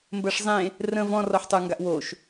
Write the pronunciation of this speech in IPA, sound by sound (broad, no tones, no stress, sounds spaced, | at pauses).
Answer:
m b ɜ ʂ zˤ ẽ | r ə̃ v ɔ̃ r ɔ ħ tˤ ə˞ ŋ ɡ a ʔ w o ʃ